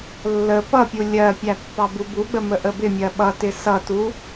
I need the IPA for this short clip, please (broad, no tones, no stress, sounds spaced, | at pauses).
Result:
lː ə p ʌ pʲ u lʲ ɜ pʲ æ pː ɑ b u b u ɡ͡b ə m ə ʔ ə b ɪ mʲ ɜ ɓ ʌ t ɪ s ʌ t u